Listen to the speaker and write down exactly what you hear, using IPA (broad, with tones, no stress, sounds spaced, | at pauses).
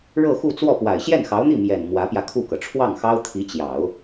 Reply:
ɻ ɤ˥˧ x u˥˧ t͡s w ɔ˥˩ p w a˨˩ ɪ̯ ɕ j ɛ˥˩ n x ɑ˧˥ ʊ̯ n̪ i˥˩ m j ɛ˨˩ n m w ä˧˥ p j ä˧ kʰ u˥˩ k ɤ˩ ʈ͡ʂʰ w ɑ˥˩ ŋ x ɑ˥ ʊ̯ t̪ʰ i˧˥ t͡ɕ j ɑ˨˩˦ ʊ̯